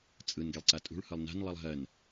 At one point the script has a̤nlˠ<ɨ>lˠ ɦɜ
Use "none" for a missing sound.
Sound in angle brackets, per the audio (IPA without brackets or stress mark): ɨ